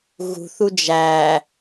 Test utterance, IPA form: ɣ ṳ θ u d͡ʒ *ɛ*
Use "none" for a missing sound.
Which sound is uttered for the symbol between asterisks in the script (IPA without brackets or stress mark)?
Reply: æ